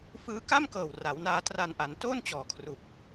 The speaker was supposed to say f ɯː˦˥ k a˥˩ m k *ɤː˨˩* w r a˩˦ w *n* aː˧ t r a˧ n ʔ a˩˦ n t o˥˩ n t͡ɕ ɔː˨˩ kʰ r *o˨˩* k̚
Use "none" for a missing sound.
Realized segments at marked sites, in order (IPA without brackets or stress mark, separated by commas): ɤː˨˩, n, u˨˩